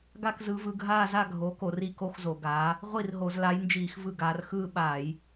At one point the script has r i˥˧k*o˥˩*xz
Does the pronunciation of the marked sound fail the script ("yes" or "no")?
yes